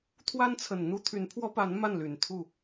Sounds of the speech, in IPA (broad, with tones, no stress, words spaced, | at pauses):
t̪ʰwa˥nt͡sʰə˨˩n n̪u˥t̪ʰy˧˥npʰwɔ˥pa˧˥n ma˥˩nly˨˩n t̪ʰu˥˩